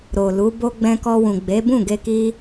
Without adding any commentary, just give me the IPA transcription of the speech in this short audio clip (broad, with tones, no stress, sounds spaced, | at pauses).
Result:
ɾ o˨ l u˨˦ b o˦ ɡ͡b ɛ̃˧ k ɔ˧ w ũ˨ ɡ͡b e˨˦ b ũ˦˨ ɡ e˧ k i˧